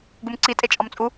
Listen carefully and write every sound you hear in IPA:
ɡ u m ǀ i tʼ e t͡ʃʼ ɒ m t͡sʼ u

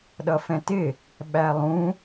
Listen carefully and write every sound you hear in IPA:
ɗ ʌ f ɛ̃ t ɪ | ɓ æ lˠ ũ

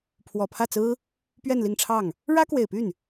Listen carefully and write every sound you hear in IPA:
pʰ w ɔ˨˩ pʰ ä˥˩ t͡s ɹ̩˥ | p ɥ ɛ˥˧ n l i˥˧ ŋ ʈ͡ʂʰ ɑ˥˩ ŋ | ɻ ä˥ k w e˨˩ ɪ̯ p y˥˩ n

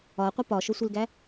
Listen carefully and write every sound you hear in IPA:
ɒ qʷ i p ɒ ʃ o sʷ i l ɡ æ

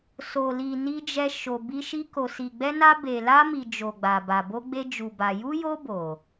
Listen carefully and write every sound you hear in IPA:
s o˨ l i˨ n i˧ d͡ʒ ɛ˧ ʃ o˨ b i˧ ʃ i˧ k o˨ s i˨ ɡ͡b ɛ˧ n a˧ b e˨ l a˧ m i˨ d͡ʒ o˨ ɡ͡b a˨ b a˨ b o˧ ɡ͡b e˧ d͡ʒ u˨ b a˨ j u˧ j o˧ b o˨

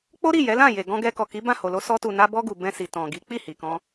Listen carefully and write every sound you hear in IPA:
k͡p o˦ ɾ i˦˨ j ɛ˨˦ l ã˦˨ j e˨ ɡ ɔ̃˧ ɡ ɛ˧ k ɔ˨ k i˨˦ b ã˦˨ h o˨ l o˧ s ɔ˧ t u˨ n a˧ b ɔ˧ ɡ u˨ b ɛ̃˧ s i˨ t ɔ̃˨ ɡ i˨˦ k͡p i˦˨ h i˨ k ɔ̃˧

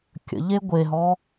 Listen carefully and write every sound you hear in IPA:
kʲ ə̰ ʎ e ɡʷ e ɦ ɔ

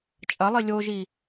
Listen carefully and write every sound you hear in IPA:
t͡ʃʼ ɐ lˠ i lʲ o ʒ i

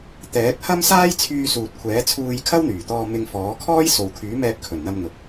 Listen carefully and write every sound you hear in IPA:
t̪ ɛː˨˥ k̚ h ɐ˥ m s aː˥ j t͡sʰ yː˧ s uː˨ t̚ kʷʰ ɛː˨˥ t͡sʰ uː˧ j kʰ ɐ˥ w n̪ yː˨˩ t̪ ɔː˧ m ɪ˧ ŋ f ɔː˨˥ kʰ ɔː˥ j s o˨ w kʰ yː˨˥ m ɛː˧ p̚ kʰ ɵ˨˩ n n̪ ɐ˧ m n̪ ʊ˨ k̚

